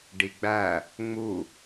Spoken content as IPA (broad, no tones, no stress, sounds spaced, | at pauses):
ɖ i ɡ͡b æ | ŋ͡m u